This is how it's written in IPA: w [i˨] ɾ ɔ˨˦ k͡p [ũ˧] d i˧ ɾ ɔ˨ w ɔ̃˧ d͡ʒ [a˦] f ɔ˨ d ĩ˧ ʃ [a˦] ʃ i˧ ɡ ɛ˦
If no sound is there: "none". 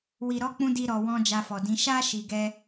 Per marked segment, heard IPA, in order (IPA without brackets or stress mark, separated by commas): i˨, ũ˧, a˧, a˦